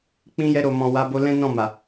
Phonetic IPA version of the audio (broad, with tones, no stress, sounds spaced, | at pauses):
k͡p ĩ˧ j ɛ˧ ɾ o˨ m ɔ̃˨ w a˧ b o˧ l ɛ̃˦ n ɔ̃˦˨ m a˨